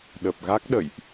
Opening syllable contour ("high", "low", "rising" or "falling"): low